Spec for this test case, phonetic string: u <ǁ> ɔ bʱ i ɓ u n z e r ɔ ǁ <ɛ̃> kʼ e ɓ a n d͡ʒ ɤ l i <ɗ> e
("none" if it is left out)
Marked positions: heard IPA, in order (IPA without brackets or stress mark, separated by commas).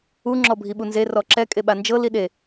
ŋ͡ǁ, ɛ, ɗ